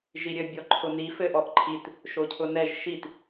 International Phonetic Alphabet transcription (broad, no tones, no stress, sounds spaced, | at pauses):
ʒ i ɾʲ ɘ bʲ ɔ ǃʰ ʊ n i f ɘ ʔ ɔ ʔ ǃʰ i t | ʃ o cʰ ʊ n ɛ ʒ ʃ i t